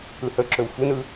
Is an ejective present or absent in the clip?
absent